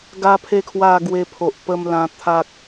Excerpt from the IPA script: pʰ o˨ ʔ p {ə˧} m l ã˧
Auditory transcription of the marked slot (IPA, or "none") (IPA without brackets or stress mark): ə˧